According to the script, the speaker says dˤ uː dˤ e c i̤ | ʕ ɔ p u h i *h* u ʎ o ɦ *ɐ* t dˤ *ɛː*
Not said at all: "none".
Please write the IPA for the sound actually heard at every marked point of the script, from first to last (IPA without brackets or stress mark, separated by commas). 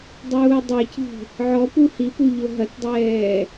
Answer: p, ɐ, ɛː